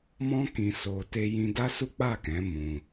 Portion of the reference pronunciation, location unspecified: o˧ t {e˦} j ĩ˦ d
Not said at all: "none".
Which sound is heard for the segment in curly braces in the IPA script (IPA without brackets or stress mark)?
e˦